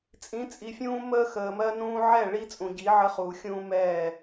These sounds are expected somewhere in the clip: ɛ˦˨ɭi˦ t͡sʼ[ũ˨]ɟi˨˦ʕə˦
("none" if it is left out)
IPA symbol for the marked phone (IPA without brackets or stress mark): ũ˨